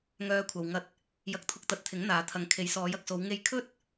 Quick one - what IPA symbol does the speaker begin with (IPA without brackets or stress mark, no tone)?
ŋ